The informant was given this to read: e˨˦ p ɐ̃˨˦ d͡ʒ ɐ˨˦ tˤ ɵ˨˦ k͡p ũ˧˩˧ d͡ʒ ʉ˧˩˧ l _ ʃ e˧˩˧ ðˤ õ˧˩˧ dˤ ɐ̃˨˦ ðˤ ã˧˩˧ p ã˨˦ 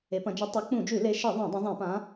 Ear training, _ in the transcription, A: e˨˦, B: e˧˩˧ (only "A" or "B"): A